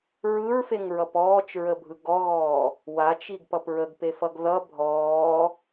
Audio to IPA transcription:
ɹ ɯ ɹ f e ŋ ɹ ʌ p ɔː t͡ʃ ɹ ə bʱ ɯ ɡ ɔ ɣ ɔː | w a t͡ʃ i ɡ p ʌ p ɹ ə ɡ p e f ʌ ɡ ð ʌ bʱ ɔː

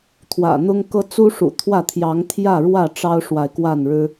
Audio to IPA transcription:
t̪ʰ w ä̰˨˩ n̪ ʊ˦ ŋ k ɤ˦ t͡s u˦ ʂ ṵ˨˩ t̪ʰ w ä˥˨ t̪ʰ j ɑ˨˦ ŋ t̪ʰ j ä˥˨ ɻ w ä˥˨ ʈ͡ʂ ɑ˦ ʊ̯ ʂ w a˨ ɪ̯ k w a˥˨ n ɻ ɻ̩˦

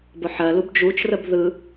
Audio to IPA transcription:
b ʊ ħ ɜ l u b d͡ʒ u t͡ʃ r ə b ð ɯ

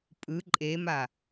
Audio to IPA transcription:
pʼ ɯ ǃʼ e m a

